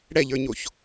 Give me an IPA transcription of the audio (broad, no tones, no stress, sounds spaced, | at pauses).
ɽ ɛ ʎ ə˞ ɲ o ç